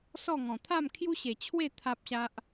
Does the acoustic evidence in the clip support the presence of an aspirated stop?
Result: yes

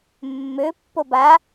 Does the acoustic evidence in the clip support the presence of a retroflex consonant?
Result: no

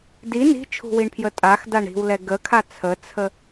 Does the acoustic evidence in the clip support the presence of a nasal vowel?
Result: no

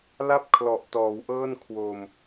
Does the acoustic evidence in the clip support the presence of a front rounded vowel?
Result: no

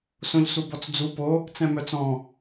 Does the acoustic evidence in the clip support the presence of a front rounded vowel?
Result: yes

